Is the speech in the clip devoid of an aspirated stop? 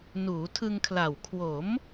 no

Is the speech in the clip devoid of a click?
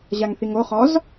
yes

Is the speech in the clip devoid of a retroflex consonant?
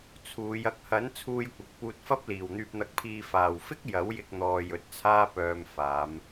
yes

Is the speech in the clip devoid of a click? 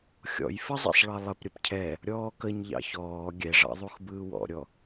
yes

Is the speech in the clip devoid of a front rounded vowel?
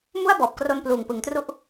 yes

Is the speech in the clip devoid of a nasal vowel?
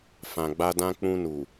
no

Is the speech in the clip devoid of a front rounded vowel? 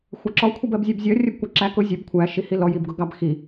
yes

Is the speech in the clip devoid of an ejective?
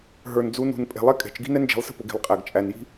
no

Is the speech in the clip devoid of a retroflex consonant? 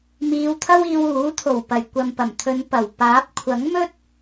yes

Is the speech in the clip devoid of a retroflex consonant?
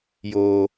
yes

